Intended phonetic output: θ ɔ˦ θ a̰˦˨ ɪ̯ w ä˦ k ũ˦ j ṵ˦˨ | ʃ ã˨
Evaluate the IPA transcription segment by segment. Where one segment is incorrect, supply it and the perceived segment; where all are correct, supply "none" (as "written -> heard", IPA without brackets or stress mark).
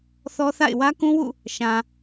j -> w